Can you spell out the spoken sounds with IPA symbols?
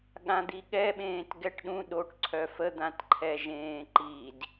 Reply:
ɠ ã d̪ i ɠ ɛ ɓ ẽː t ɡ ɛ ʈ ɗ ũ ɗ o ʈ ǀʰ œ f ə d̪ ã t ǃʰ ɛ ʒ ẽː ǃ i d

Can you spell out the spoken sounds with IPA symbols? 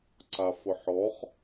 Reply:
ǀ a f ʊ ħ ɔ χ

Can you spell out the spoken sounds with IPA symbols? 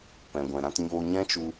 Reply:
p ɛ̃˨ ɡʷ ɛ̃˨ ɾ ã˧ t ɲ oː˧ ɲ ɛ̃˦ t͡ʃ u˧

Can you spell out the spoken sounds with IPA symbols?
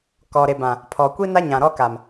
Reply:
k ɔ˨ ɾ e˨ b ã˨ | pʰ ɔ˨ kʷ i˦ n a˦ ɲ ã˨ ɾ ɔ˦ k a˨ m

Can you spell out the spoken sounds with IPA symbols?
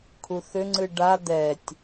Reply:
kʰ u θ ʏ ŋ͡ǀ ɨ ɖ a d̪ ɛ tʲ

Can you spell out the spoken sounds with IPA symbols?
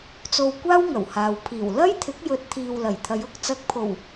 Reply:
t͡s o˧ w kʷ aː˥ w ŋ ɐ˨˩ w h aː˨ w pʰ iː˨˩ w l ɐ˥ j t̪ʰ ɪ˨˥ k̚ j ɵ˨˥ t̚ t̪ʰ iː˨ w l ɐ˨˩ j t̪ʰ ɐ˨˧ j ʊ˧ k̚ t͡s ɐ˧ k̚ pʰ o˨˩ w

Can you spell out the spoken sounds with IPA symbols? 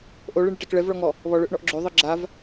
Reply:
ʔ o ɭ ɨ ɳ ɨ ʈ ɛ k ɭ ɛ v ɭ ɔ ŋ ɔ | β ɔ ɭ ø ʔ ɳ ɔ ʔ ɡ͡ǁ ø ðˤ ɨ ɡ͡ǁ a v

